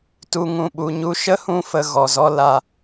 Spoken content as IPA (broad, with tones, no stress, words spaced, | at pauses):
tu˨ŋũ˨ɓu˨ɲu˧ ʃə˦hũ˧fə˨ ɣɔ˨zɔ˦ la˧